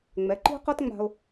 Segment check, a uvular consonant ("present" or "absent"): present